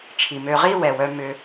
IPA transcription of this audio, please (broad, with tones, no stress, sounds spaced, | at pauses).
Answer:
t͡ʃʰ i˨ m ø˧ ʁ i˦ w ɛ˨ w œ˧ m ʏ˧